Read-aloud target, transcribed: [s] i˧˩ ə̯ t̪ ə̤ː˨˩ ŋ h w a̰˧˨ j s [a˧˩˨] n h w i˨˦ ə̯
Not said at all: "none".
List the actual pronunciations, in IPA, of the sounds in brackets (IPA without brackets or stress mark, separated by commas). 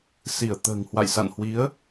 s, a̰˧˨